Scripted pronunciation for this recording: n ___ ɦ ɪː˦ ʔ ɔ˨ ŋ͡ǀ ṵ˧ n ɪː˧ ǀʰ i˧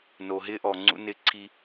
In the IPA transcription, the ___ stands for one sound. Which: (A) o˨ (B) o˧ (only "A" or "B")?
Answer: A